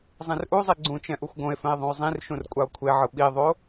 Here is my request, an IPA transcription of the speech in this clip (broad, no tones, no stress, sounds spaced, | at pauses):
zˤ ẽ r ʔ u zˤ i ɡ͡ǀ ũ t͡ʃ ɛ̃ ʔ u xʷ ɡ õ e̯ f ɛ̃ e̯ ðˤ ũ o̯ zˤ ĩ r ʃ ũ r kʷʼ a o̯ kʷʰ e ʕ ɯ ɓ i ðˤ o